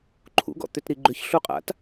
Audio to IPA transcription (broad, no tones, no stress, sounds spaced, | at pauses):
ǃʰ ṵ ɡ ɔ̰ t̪ ʏ t ɾ i ɡ͡ǃ ʏ ç ɬ u qʼ a̰ t